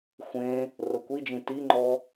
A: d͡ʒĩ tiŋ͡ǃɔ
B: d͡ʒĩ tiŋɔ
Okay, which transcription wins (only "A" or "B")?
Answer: A